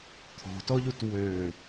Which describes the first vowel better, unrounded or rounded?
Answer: rounded